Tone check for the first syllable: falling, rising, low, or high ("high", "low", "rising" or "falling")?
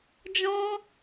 high